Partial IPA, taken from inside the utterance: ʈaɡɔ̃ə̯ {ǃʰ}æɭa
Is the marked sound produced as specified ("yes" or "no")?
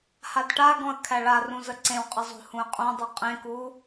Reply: no